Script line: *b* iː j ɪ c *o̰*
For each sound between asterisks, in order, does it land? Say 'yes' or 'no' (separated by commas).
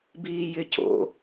yes, yes